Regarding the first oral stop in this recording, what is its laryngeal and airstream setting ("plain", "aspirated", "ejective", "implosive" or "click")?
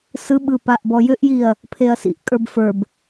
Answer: implosive